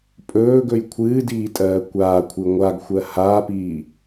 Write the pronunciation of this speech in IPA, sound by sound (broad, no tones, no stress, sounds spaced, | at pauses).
pʼ ɵː ɡ ɵ j kʷʰ ɨː d iː tʼ ɜː kʷ aː kʷʰ ɨ ŋʷ a ɡ xʷ ɜ h aː p iː